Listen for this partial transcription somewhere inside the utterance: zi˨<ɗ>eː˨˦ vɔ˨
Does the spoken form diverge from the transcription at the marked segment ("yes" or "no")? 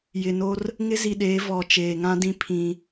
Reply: no